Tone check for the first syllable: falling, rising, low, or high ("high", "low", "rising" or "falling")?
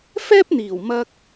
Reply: high